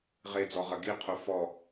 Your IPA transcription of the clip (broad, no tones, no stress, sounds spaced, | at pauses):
ʁ e d͡z ɔ ʁ ɐ ɡ i qʰ o f ɔ